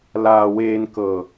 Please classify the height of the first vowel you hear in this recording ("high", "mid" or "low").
low